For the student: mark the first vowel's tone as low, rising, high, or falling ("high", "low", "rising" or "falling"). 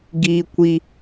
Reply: high